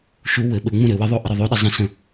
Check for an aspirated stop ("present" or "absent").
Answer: absent